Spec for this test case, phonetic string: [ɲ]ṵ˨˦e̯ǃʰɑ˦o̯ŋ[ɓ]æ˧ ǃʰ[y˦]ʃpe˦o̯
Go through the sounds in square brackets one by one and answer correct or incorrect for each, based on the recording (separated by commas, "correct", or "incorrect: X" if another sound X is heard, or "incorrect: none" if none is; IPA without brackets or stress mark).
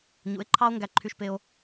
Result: correct, incorrect: ɡ, correct